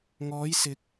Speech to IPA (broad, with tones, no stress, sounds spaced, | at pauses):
ŋ ɔː˨˧ j s ɪ˨˥ k̚